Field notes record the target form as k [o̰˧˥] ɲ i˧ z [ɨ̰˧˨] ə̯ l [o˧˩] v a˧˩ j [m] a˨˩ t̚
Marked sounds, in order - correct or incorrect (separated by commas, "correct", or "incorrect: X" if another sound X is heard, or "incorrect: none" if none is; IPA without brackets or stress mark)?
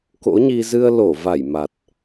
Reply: correct, incorrect: ɨ˧, correct, correct